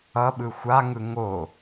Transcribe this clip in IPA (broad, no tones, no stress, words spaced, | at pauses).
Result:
ʌɓɯ xʷaŋɯ ŋo